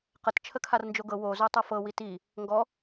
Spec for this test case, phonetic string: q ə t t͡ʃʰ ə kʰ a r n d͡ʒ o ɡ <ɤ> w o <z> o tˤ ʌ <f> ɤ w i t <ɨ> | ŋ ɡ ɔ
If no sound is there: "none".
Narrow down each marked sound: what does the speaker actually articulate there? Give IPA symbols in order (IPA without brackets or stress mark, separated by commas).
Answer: ɤ, z, f, i